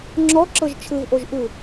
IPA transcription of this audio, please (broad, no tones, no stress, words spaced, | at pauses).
ŋ͡ǁɔǁɤʒ t͡ʃʰɯvʔoʒ ʔɯ